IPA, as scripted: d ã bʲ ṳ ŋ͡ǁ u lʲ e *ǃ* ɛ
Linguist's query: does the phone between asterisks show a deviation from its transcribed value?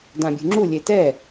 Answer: yes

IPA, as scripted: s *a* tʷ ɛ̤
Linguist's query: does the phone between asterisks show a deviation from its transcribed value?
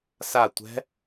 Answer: no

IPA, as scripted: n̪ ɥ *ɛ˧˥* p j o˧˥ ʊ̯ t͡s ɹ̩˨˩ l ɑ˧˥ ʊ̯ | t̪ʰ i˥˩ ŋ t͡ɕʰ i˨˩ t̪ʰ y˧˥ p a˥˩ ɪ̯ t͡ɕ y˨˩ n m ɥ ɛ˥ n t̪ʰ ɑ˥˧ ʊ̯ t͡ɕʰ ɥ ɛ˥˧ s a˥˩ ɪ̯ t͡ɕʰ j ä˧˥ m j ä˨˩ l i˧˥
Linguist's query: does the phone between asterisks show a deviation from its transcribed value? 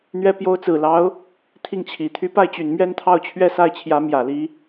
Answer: no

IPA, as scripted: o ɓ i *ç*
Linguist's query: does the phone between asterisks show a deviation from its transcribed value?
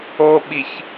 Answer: no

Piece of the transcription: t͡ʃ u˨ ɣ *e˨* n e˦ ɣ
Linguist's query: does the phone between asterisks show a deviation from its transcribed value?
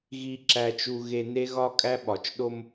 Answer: no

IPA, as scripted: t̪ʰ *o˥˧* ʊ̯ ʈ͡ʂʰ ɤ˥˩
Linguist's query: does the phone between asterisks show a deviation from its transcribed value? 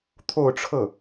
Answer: no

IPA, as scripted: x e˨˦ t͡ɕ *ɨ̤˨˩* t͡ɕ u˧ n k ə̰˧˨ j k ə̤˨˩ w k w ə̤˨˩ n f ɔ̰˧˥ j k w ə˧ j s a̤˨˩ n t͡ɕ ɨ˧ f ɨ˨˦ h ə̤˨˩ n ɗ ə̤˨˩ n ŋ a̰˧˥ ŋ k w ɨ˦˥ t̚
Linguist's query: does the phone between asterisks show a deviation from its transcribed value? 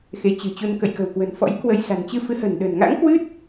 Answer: no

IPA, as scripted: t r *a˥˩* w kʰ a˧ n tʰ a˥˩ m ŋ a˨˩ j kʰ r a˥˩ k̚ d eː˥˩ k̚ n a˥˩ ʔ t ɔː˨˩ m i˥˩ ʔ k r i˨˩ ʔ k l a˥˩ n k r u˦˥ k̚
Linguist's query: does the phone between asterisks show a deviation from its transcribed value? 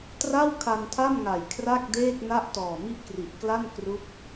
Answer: no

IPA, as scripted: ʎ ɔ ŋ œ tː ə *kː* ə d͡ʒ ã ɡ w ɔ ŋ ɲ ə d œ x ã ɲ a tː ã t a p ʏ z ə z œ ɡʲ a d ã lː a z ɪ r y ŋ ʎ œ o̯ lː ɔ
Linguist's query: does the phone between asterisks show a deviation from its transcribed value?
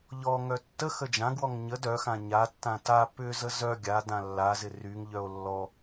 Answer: yes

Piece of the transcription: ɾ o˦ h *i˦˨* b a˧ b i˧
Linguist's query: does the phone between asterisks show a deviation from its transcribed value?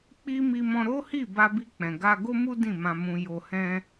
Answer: no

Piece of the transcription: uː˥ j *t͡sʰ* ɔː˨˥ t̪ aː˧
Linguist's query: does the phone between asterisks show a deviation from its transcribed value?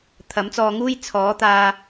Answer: no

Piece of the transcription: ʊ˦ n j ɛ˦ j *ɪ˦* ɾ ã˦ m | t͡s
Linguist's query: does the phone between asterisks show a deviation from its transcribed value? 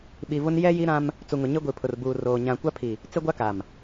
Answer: yes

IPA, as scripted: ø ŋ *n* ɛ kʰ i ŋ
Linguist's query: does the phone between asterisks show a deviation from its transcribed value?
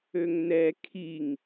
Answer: no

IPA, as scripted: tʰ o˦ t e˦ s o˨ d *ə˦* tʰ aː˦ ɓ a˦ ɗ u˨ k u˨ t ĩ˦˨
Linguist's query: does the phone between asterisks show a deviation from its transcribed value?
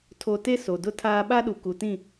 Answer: yes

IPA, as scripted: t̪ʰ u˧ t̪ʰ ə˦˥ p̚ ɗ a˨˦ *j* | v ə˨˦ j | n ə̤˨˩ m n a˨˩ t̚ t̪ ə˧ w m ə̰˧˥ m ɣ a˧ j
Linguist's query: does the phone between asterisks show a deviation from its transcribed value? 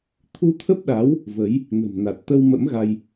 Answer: yes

